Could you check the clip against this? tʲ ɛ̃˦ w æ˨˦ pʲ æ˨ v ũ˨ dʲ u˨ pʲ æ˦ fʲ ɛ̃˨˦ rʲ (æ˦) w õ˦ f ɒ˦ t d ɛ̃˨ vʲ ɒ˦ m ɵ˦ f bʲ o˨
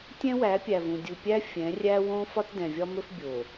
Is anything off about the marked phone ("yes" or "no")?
no